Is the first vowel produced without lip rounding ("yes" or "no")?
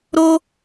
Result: no